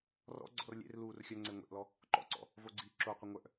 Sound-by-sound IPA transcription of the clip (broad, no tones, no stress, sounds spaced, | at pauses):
r ɔ̰ ɡ͡ǀ ɔ̰ r lʲ ḛ r l uː r xʲ œ ŋ͡ǀ e ŋʷ ḛ ʔ l ɔ | ǃ ɔ̰ ǀ ɔ̰ | v o ɡ͡ǀ iː ǁ o qʷ ə ŋʷ œ ʔ